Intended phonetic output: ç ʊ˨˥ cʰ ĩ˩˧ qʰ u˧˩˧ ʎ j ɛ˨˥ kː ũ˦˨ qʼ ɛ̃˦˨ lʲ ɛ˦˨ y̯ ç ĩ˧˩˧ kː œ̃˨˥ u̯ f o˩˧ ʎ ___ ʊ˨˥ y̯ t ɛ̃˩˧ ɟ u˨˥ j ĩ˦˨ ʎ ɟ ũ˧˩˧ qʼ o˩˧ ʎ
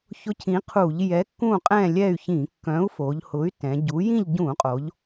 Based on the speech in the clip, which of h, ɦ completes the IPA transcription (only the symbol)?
h